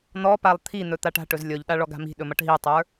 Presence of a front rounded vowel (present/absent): absent